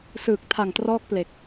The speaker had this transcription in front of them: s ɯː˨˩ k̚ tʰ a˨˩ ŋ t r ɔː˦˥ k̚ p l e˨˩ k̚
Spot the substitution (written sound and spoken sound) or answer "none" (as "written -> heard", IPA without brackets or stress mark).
none